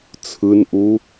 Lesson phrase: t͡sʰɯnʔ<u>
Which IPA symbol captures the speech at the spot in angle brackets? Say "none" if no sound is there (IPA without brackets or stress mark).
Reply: u